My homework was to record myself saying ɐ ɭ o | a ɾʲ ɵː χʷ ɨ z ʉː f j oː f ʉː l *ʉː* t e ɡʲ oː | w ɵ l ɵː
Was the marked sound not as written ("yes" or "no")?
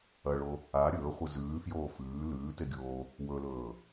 no